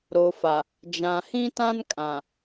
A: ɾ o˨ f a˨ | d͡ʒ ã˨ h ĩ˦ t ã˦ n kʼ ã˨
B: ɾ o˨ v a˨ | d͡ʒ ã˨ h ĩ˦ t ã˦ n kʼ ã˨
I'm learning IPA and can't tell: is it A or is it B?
A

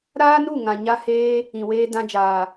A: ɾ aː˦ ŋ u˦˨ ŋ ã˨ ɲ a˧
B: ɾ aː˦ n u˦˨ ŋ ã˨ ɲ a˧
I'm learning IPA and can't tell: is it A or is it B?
B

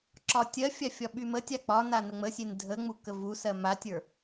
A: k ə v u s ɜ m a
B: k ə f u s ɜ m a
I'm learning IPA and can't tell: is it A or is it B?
A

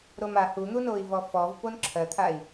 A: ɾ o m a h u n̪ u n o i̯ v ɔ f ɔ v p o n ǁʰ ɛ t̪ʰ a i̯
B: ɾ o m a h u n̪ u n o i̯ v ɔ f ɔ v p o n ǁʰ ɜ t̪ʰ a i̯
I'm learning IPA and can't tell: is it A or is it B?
B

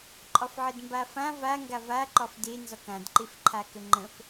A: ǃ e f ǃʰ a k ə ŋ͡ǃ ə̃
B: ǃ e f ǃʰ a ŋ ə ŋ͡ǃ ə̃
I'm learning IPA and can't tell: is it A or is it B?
A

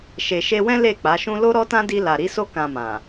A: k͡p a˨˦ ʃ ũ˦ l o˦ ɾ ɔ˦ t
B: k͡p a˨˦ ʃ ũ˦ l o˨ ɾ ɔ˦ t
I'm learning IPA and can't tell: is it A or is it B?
A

